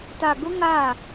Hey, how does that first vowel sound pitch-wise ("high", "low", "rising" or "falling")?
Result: low